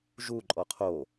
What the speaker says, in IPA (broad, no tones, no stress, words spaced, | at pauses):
ʒuǃʼɔ qʰo